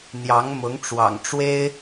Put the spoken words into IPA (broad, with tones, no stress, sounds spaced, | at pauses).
n̪ j ɑ˧˥ ŋ m ʊ˧˥ ŋ ʈ͡ʂ w ɑ̰˨˩ ŋ ʈ͡ʂ w e˥ ɪ̯